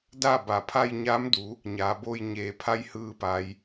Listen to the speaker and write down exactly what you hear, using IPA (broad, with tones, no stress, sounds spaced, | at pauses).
d a˥˨ b a˩ pʰ a˧ j ɲ aː˧˥ m d u˩˧ | ɲ aː˩˧ b oː˧ j ɲ eː˩ pʰ a˧˥ j h ɯː˧ p a˩˧ j